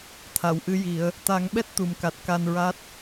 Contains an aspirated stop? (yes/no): yes